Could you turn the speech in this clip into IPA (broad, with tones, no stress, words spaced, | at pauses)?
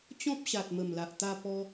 t͡ɕɔ̃˦p̚ɕa˨t̚mə˨˩mla˨ʔ t̪a˧pɔ˧